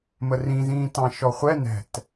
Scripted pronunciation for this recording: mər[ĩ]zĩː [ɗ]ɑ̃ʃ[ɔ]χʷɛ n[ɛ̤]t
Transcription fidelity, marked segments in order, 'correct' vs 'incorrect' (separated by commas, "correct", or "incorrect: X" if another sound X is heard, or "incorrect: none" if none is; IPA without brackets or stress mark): correct, incorrect: t, correct, correct